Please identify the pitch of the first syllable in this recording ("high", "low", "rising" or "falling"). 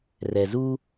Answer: low